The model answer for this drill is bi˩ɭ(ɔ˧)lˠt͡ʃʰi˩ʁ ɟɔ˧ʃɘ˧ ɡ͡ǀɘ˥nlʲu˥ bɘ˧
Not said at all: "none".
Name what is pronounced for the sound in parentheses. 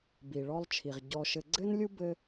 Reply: ɔ˧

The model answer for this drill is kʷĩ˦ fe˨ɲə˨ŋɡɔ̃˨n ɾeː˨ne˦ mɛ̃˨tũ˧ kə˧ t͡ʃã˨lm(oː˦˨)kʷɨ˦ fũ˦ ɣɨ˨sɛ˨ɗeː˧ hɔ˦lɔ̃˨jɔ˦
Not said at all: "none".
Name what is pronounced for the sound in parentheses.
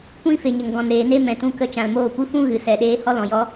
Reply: oː˦˨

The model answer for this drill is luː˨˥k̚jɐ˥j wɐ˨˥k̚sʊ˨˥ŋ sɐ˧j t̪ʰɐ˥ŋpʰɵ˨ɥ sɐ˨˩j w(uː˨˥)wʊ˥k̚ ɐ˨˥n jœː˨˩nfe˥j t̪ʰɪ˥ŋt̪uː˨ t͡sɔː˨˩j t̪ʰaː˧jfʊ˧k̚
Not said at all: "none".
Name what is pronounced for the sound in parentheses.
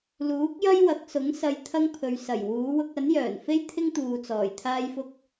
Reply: uː˨˥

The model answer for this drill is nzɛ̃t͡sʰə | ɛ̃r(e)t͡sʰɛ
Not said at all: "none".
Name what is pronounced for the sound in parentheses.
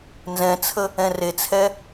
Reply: e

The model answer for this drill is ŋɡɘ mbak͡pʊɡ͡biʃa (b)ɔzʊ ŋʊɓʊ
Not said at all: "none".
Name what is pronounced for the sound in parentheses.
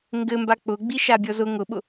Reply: bʲ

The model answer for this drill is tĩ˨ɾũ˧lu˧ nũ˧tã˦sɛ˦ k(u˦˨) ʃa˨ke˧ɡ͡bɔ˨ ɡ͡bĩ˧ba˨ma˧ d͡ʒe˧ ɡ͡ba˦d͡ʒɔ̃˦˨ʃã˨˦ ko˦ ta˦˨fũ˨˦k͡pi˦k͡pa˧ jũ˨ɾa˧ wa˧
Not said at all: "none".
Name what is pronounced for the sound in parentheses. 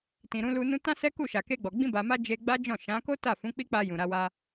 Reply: u˦˨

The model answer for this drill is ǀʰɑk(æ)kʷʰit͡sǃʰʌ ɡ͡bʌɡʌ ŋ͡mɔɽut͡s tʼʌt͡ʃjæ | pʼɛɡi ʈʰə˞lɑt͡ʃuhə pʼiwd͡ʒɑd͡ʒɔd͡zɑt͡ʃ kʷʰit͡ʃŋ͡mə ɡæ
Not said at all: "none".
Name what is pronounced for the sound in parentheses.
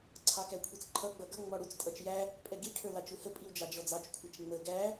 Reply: æ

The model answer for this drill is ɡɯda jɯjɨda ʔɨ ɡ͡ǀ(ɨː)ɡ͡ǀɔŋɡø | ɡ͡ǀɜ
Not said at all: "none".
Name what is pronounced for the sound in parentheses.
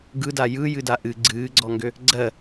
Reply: ɨː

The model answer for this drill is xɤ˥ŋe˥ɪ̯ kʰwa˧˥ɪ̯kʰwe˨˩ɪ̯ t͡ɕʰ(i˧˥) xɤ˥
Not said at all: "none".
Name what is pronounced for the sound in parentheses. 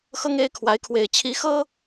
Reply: i˧˥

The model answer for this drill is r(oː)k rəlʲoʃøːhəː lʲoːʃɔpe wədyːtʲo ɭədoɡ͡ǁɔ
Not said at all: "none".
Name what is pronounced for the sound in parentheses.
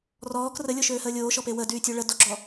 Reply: ɔː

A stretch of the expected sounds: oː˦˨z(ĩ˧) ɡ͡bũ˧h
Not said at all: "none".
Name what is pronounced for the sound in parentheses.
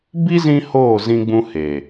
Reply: ĩ˧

